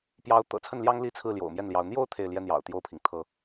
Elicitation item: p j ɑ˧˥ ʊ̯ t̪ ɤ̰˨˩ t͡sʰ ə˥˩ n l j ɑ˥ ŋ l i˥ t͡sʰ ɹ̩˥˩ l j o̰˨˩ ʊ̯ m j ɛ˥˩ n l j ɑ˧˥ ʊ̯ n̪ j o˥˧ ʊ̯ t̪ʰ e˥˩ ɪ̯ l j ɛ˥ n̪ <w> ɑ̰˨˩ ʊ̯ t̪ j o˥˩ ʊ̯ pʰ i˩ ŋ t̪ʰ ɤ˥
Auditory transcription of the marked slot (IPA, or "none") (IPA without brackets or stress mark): j